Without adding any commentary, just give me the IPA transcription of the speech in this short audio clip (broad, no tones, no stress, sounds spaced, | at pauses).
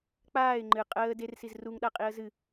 k͡p aː ɪ̯ ŋ͡ǃ ɨ qʼ əː d e r s i z r u ŋ ɗ a qʼ i ə̯ z ɨ